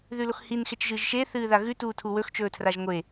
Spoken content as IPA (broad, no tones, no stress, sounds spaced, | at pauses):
ð ʉ l o x h i n x e t͡ʃ ʒ ɨː ʒ ʃ e θ ɨː ð a ɣ ʉ t uː tʰ u w ɵ x t͡ʃ ɵː tʰ r a ʒ ŋʷ e